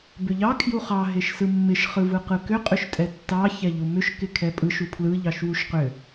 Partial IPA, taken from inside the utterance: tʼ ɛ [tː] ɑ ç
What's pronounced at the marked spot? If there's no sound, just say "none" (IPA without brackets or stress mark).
tː